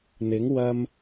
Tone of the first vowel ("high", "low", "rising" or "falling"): rising